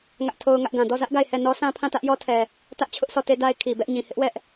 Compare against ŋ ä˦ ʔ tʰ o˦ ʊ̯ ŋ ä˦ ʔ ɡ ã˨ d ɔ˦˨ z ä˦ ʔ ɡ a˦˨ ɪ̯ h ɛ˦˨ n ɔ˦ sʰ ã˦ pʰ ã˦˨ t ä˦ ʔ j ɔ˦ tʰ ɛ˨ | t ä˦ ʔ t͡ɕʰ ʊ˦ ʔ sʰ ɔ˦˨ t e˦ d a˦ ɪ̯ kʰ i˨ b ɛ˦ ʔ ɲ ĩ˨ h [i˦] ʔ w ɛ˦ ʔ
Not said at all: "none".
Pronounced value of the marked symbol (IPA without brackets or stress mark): ɪ˦